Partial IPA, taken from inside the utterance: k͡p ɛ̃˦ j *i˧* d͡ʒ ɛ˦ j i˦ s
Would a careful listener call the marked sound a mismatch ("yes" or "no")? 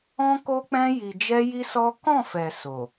no